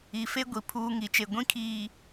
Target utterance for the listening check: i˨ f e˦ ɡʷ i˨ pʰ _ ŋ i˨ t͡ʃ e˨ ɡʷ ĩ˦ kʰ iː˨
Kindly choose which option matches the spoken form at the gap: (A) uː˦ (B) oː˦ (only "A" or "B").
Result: A